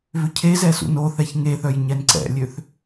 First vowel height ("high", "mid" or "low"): high